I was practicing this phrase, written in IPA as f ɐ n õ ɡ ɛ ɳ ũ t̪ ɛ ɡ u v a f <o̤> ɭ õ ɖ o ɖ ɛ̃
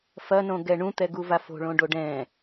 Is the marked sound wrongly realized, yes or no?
no